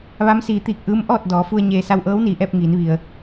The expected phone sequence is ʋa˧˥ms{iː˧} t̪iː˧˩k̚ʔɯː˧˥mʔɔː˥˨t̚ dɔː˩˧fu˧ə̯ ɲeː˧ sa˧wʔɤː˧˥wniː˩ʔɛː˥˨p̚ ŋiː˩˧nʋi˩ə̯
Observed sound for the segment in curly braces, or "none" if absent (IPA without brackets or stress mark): iː˩˧